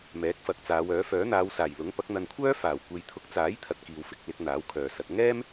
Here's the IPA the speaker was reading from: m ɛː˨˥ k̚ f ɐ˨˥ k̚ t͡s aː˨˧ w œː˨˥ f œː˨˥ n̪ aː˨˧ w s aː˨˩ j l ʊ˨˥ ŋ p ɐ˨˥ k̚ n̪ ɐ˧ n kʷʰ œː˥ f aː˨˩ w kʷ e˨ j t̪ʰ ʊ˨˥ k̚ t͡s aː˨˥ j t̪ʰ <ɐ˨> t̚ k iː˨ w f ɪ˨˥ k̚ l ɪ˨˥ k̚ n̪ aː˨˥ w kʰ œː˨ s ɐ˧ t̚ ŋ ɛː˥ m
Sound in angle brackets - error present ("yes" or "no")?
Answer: no